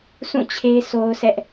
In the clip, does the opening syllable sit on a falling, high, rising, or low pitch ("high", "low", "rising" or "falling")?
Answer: falling